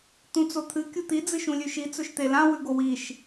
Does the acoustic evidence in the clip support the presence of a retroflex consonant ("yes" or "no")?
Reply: no